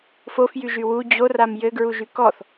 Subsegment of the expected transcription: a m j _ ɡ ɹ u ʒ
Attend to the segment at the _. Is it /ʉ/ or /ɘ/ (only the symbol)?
ɘ